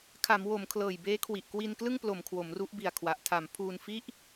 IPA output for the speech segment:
kʰ a˩˦ m w o˩˦ m kʰ l ɤː˨˩ j b eː˦˥ kʰ w i˨˩ ʔ k w i˧ n k l ɯ˥˩ ŋ p l o˨˩ m kʰ w o˩˦ m r u˦˥ ʔ b i˨˩ a̯ kʰ w a˨˩ ʔ tʰ a˩˦ m pʰ uː˧ n f i˥˩ ʔ

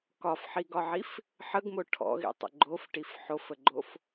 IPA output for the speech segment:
k ɒ f ħ i ɡ ɒ ʕ i f | ħ ə ɡ m o ʈʰ ɔ̰ ɣ ḭ tˤ ə̰ ɡ͡ǃ o f ʈ i f ħ o f ə ɡ͡ǃ o f

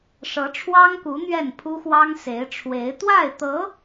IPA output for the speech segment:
ʂ ɤ˧˥ ʈ͡ʂʰ w ɑ˥ ŋ k u˧˥ n̪ ɥ ɛ˥˩ n pʰ u˥ x w ɑ˥ ŋ s e˧˥ ɪ̯ ʈ͡ʂʰ w e˧˥ ɪ̯ t̪ w a˥˩ ɪ̯ t̪ ɤ˧˥

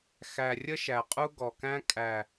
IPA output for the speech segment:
x æ˨ rʲ ə˦ ʃ æ˨ qʼ u˦ ɡ ɔ˨ k æ̃˦ kʼ æ˨

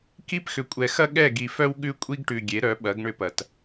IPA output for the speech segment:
k i˦ p x ʏ˨ kʷʼ ɛ˨ x ɐ˦ ɠ ɛ˦˨ ɡ i˨ f œ˦ w ɠ ʉ˦ kʷʼ i˦ ɡ ʈ ʉ˨ ɡʲ e˨˦ ɾ œ˨˦ ɓ ɐ˨˦ ɡ ɳ ʏ˦ p ɐ˨ t

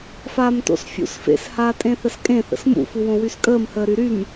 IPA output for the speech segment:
f aː m t o̰ s fʲ ṵ s f ḛ s h aː tʼ ẽ θ ə s kʼ ẽ θ ə̰ s m ṵ f u w õ w y s kʼ əː m h əː ɾ y ɾ y m

